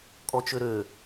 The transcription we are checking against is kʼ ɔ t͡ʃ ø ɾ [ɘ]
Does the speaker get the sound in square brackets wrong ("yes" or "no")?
yes